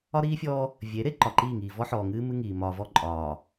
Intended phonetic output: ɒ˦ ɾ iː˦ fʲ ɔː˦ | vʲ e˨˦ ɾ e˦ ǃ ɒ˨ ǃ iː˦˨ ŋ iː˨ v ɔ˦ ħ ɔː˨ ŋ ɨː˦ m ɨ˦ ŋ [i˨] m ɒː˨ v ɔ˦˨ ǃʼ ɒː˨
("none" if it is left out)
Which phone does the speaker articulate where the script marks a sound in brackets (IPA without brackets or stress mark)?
iː˨